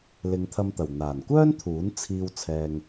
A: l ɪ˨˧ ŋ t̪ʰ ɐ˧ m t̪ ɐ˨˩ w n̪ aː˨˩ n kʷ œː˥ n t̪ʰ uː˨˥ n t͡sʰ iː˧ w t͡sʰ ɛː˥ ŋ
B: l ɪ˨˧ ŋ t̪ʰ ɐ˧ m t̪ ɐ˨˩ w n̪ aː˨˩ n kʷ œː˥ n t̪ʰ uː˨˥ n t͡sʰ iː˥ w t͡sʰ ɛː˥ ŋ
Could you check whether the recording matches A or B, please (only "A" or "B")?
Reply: B